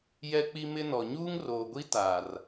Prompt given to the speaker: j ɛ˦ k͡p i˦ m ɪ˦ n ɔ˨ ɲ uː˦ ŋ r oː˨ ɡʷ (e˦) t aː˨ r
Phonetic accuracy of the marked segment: incorrect: i˦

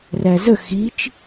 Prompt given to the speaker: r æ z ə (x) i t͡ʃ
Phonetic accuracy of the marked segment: correct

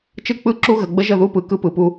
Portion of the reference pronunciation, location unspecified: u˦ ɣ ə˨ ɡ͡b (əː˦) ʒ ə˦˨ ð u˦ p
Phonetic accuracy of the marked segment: incorrect: ə˦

